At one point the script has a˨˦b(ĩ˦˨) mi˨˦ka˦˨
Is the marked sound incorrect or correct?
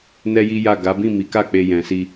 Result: correct